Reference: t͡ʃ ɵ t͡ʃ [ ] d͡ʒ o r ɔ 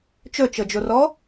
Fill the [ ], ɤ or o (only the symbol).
ɤ